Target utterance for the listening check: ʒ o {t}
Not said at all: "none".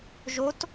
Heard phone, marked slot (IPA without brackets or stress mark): t